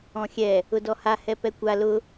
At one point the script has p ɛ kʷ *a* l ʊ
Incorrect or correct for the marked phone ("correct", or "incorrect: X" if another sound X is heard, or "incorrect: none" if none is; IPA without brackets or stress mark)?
correct